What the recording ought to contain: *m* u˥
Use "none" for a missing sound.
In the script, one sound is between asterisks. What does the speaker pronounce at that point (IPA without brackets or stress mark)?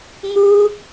m